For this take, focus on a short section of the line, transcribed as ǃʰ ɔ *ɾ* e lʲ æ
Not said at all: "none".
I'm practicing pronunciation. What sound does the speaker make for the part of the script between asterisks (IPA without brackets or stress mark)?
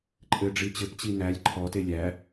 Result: t